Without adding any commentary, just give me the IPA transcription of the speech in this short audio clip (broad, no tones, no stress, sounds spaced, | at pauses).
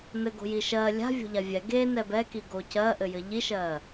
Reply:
n ɘ ɡ o̤ j i ʃ ɜ lʲ a̤ vʲ o̤ ʎ a vʲ ɛ ɡ e n ɛ b ɛ k i ɡ o c ɜ ʔ ɘ j ɘ ʎ i ʃ ɜ